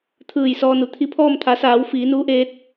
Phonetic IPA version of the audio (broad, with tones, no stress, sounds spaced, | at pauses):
t̪ʰ ɯː˧˩ j s ɔː˧ n u˩˧ t̪ʰ i˧˥ pʰ ɔː˥˨ m t̪ʰ a˩˧ s aː˩˧ w f iː˩˧ n uː˧˥ ʔ eː˧˥ t̚